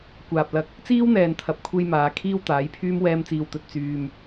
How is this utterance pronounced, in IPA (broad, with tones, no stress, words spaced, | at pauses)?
kʷaː˨p̚ lɐ˧k̚ | t͡siː˥wn̪ɛː˨nt̪ʰɐ˨p̚kʷʰe˧j maː˨˧ kʰiː˥wt̪aː˨˥jpʰyː˥m wɛː˥mt͡siː˧w t̪ɵ˨t̚ t͡syː˨m